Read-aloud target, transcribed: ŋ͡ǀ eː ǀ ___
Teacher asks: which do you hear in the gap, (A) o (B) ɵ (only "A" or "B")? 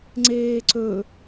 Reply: B